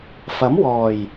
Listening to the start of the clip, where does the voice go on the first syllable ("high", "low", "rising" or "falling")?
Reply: rising